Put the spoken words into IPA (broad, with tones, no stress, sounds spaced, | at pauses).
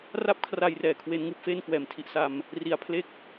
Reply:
r a˥˩ p̚ kʰ r a˧ j r ɛː˨˩ kʰ w e˦˥ n ŋ ɯː˦˥ p̚ f e˥˩ n k w ɛː˨˩ m tʰ i˦˥ ʔ s a˧ m | r i˨˩ a̯ pʰ l e˥˩ k̚